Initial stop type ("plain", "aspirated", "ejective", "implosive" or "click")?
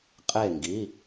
ejective